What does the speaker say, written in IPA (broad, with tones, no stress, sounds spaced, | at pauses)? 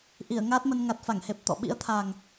ʔ i˧˩ ə̯ ŋ aː˦˥ t̚ m ə˧ n ŋ a˨˩ t̚ f a˧˩ ŋ h e˨˩ p̚ t̪ ɔ̰˧˨ ɓ ḭ˧˥ ə̯ t̪ʰ a˨˩ ŋ